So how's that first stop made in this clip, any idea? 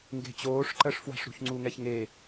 plain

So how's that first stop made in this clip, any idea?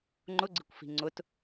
click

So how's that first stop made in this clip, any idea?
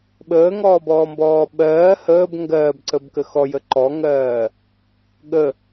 implosive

